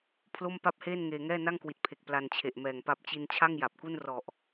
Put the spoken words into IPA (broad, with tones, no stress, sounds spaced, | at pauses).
pʰ l o˥˩ m p a˥˩ p̚ h eː˥˩ n ŋ eː˧ ŋ ɛː˥˩ n a˥˩ ŋ k w i˨˩ t̚ pʰ e˨˩ k̚ p l a˧ n t͡ɕʰ e˨˩ ʔ m ɛː˨˩ ŋ p a˦˥ p̚ t͡ɕ i˧ n t͡ɕʰ a˥˩ ŋ j a˨˩ p̚ k u˥˩ n r ɔ˨˩ ʔ